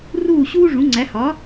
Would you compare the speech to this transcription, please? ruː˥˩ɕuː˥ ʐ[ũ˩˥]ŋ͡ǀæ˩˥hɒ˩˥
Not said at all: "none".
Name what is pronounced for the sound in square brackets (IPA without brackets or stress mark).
ũ˩˥